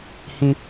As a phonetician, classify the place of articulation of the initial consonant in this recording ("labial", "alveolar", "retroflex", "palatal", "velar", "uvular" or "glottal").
glottal